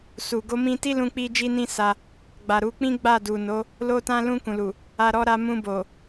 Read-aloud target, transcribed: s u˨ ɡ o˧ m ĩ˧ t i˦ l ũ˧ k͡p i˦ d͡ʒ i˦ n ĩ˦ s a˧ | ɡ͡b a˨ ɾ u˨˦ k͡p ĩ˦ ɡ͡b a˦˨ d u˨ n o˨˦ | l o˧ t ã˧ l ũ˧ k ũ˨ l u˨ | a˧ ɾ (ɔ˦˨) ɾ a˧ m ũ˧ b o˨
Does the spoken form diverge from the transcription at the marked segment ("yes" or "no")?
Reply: yes